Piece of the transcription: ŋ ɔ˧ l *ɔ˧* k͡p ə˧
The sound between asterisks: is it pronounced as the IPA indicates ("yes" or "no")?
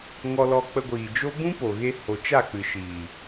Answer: yes